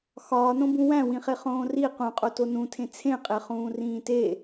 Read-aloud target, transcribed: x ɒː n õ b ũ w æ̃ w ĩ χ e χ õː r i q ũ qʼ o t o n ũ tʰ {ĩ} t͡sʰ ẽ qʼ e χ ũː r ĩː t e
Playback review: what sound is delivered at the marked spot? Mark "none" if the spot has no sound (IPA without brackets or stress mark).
ẽ